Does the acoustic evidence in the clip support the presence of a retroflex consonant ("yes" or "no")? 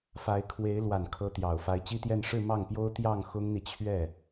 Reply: yes